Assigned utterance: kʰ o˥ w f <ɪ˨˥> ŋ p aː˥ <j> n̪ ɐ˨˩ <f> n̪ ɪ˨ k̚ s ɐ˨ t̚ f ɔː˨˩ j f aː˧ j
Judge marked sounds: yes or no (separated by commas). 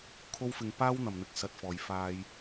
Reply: no, no, no